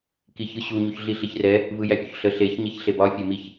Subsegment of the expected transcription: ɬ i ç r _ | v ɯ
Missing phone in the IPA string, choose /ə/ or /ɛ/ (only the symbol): ɛ